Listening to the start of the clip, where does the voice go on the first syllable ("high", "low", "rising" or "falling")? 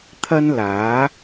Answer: high